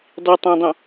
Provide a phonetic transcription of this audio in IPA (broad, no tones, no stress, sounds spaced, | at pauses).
dˤ i tˤ œ̃ dˤ õ